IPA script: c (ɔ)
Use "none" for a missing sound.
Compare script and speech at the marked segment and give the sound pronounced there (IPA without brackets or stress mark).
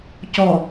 ɔ